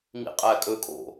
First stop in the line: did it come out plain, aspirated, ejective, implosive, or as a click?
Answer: ejective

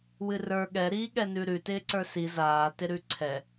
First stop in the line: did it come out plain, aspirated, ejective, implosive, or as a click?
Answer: implosive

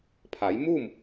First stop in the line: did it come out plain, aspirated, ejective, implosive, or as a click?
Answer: aspirated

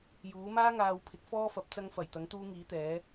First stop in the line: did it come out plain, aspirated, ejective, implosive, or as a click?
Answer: aspirated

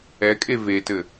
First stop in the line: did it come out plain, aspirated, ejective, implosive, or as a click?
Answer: ejective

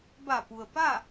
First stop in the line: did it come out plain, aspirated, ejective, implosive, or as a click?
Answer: plain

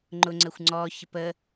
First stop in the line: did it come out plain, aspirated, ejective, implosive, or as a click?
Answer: click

